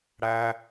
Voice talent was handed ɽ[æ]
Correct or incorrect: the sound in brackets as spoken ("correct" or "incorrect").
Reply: correct